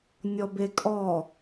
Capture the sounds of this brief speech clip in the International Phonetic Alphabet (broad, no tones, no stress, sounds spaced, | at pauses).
nʲ ɔ b e kʼ ɔ